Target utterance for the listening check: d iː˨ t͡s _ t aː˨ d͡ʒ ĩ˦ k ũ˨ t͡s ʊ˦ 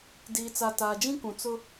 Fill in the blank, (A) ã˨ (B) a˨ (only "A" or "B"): B